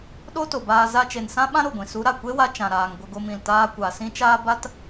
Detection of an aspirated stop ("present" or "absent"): absent